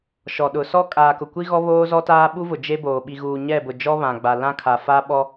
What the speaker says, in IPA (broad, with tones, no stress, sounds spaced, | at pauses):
ʃ ɔ˨ ɗ ʊ˨ s ɔ˦ kʼ aː˨ k ʊ˨ kʷ i˦ ɣ ɔ˦ β oː˦ z ɔ˦ t aː˦ ɓ u˦ v ʊ˨ d͡ʒ e˦ b oː˨ ɓ i˨ ɣ uː˨ ɲ ɛ˦˨ b ʊ˨ d͡ʒ ɔ˦ β ã˨ ɡ͡b a˨ l ã˦ kʰ a˨ f a˦ ɓ ɔ˦